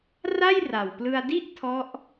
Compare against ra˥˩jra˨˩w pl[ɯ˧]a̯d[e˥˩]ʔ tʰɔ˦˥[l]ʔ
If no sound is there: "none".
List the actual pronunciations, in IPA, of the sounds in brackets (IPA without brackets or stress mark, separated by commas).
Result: ɯ˧, i˥˩, none